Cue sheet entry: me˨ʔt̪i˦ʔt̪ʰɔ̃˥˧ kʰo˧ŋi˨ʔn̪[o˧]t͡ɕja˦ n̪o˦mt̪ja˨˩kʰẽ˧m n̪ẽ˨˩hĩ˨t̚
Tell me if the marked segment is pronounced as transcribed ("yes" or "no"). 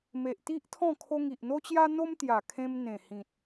no